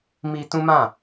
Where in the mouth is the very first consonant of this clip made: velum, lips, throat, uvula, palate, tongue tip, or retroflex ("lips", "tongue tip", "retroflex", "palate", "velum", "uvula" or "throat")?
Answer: lips